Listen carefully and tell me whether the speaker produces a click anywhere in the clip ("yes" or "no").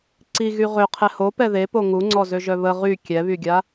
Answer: yes